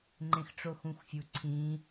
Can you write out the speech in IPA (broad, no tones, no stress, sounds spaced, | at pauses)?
ŋ͡ǃ ẽ x ʈ͡ʂ o x ũ xʷ fʲ u ǀʰ ĩ